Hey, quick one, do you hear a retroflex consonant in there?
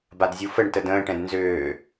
yes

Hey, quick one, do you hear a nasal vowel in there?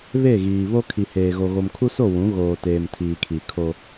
yes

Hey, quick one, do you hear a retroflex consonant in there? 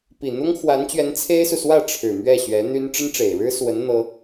yes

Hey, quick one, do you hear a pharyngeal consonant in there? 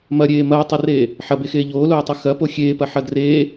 yes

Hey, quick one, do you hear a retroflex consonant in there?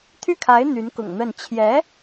no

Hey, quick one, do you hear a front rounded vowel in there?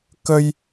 no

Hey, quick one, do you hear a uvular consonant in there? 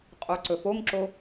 yes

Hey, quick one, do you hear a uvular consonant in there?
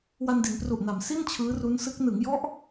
no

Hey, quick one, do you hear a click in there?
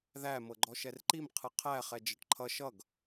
yes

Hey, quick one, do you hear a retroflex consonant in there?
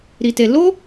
no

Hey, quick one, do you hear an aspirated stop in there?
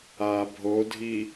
no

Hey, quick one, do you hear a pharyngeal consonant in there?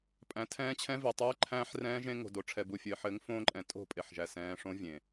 yes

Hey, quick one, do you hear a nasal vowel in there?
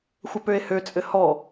no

